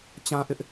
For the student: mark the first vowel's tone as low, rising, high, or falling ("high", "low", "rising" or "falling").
high